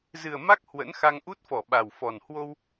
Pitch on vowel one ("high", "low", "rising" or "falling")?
low